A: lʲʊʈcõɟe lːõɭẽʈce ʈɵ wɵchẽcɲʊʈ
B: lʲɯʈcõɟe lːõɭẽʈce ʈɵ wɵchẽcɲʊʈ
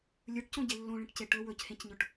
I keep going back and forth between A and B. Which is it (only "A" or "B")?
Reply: B